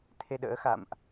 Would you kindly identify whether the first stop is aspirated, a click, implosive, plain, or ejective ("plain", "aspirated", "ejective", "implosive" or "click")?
aspirated